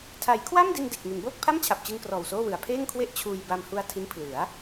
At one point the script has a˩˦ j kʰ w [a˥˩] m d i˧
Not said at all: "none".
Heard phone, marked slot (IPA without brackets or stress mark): a˥˩